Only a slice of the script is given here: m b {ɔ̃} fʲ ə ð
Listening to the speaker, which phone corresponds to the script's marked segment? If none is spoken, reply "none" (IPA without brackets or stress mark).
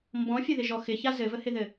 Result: ɔ̃